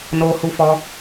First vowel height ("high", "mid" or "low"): mid